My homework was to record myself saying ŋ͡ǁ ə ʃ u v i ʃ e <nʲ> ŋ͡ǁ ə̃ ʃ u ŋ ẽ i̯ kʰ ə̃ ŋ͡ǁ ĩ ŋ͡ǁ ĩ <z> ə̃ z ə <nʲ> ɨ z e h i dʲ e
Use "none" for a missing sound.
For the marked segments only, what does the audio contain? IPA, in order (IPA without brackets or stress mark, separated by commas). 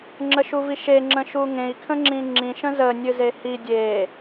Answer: none, ʃ, nʲ